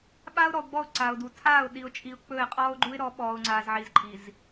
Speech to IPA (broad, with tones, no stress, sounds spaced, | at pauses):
ɓ aː˦ ʊ̯ ɾ ɔ˨ ʊ̯ ɡ͡b ɔ˦˨ ʊ̯ ǀ a˨ ʊ̯ d u˨ tʰ aː˦˨ ʊ̯ ɗ i˨ ʊ̯ t͡ʃʼ i˨ ʊ̯ k͡p ɵ˦˨ ɪ̯ qʼ ɔː˦ ʊ̯ ɡ͡ǃ u˦ ɪ̯ ɾ ɔ˨˦ ɓ ɔː˨ ʊ̯ ŋ͡ǀ aː˨ z ʕ i˨ z ǃʼ i˨ z